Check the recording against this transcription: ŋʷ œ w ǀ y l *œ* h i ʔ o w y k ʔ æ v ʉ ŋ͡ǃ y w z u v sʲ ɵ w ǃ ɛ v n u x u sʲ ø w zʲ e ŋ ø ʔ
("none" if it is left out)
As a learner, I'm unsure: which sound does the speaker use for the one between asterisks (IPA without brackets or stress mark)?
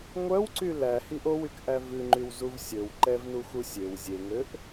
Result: æ